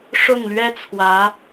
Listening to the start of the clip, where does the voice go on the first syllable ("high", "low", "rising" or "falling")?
falling